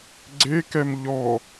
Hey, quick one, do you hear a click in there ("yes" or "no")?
yes